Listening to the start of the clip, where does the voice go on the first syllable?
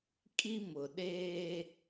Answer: high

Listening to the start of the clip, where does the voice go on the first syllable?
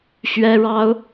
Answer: high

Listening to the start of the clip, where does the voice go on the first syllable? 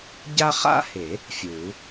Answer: high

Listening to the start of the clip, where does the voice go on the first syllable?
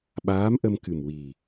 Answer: rising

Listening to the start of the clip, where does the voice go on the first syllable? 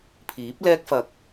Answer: rising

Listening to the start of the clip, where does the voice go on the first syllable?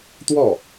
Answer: falling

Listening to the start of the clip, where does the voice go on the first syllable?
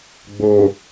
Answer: low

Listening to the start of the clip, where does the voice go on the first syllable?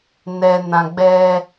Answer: low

